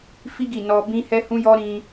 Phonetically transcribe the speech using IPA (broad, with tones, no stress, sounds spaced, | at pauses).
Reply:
f i˦ ɡ i˦˨ n ɔ˧ b ĩ˦ h ɛ˦ h ũ˦ j ɔ˦ ɾ ĩ˧